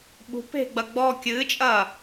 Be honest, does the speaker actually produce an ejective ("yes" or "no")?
yes